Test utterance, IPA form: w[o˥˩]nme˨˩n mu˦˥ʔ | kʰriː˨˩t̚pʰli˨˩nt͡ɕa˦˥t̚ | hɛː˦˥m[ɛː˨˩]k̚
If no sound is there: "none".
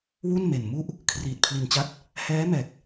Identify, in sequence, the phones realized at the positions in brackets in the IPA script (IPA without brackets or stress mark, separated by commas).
u˥˩, ɛː˨˩